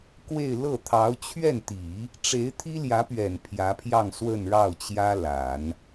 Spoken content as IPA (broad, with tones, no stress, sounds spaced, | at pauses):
k w e˥˧ ɪ̯ l ɤ˥˩ t̪ʰ ɑ˧˥ ʊ̯ t͡ɕʰ ɥ ɛ˥˩ n t̪ i˨˩˦ | ʈ͡ʂ e˧˥ ɪ̯ t̪ʰ i˥ l j ä˧˥ p ɥ ɛ˨˩ n pʰ j ä˧˥ pʰ j ɑ˥˧ ŋ s w ə˥˧ n ɻ ɑ˥˩ ʊ̯ t͡ɕ j ä˥ l a˨˩˦ n